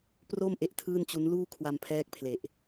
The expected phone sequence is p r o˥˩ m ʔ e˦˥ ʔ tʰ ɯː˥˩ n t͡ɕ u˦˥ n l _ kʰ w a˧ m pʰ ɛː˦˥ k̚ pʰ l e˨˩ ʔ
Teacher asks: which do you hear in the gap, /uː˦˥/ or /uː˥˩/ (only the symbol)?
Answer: uː˥˩